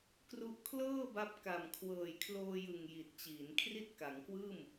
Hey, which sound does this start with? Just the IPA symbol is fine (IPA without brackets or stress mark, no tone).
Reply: k